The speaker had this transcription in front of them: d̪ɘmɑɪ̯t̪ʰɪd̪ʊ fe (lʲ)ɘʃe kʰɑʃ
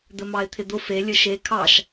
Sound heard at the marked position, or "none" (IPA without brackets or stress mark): lʲ